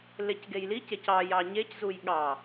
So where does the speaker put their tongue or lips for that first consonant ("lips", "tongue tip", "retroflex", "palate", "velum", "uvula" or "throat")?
tongue tip